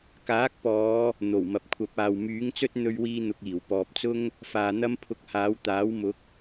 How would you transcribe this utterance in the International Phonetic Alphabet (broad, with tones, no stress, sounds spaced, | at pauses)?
k aː˨˥ k̚ p ɔː˨˧ | n̪ o˨˩ w m ɐ˨ p̚ kʷʰ ɐ˨˥ p̚ aː˨ w m yː˨˥ ŋ t͡s ɵ˥ t̚ n̪ ɵ˥ ɥ w iː˥ n̪ ʊ˧ k̚ iː˨˩ w p ɔː˨ p̚ t͡s ʊ˥ ŋ | f aː˨ n̪ ɐ˥ m pʰ ʊ˧ k̚ h aː˨˥ w t̪ aː˨˥ w m ʊ˨˥ k̚